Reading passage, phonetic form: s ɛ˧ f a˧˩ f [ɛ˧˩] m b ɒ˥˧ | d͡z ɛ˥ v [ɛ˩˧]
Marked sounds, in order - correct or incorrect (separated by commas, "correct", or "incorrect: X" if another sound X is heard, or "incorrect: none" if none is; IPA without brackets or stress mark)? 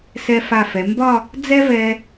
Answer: incorrect: ɛ˩˧, incorrect: ɛ˧